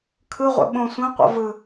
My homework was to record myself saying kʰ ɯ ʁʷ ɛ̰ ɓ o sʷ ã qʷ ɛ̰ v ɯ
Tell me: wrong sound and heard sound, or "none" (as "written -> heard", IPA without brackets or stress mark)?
o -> õ